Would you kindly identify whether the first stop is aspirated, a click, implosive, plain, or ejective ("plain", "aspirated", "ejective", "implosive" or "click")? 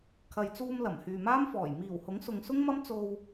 aspirated